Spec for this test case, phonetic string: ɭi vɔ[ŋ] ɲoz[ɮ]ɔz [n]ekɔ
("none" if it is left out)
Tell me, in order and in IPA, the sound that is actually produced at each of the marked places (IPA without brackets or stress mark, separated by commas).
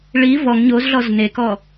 ŋ, ɮ, n